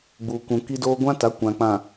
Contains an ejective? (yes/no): no